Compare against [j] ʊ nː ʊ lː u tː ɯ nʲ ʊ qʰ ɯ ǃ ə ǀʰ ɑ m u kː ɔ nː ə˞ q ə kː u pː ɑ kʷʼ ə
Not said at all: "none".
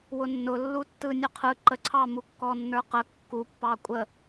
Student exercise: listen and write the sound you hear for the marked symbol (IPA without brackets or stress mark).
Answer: w